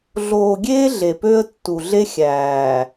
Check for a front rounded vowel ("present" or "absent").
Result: present